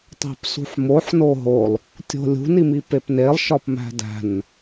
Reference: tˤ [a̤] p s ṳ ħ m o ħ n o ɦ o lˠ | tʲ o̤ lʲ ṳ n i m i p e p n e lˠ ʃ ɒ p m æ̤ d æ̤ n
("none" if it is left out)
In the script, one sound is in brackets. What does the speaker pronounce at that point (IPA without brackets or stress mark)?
æ̤